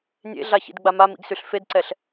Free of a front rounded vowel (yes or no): no